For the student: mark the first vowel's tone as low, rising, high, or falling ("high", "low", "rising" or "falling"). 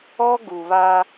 high